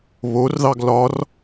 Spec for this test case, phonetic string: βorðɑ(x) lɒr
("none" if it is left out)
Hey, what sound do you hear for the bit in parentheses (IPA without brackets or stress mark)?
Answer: ɡ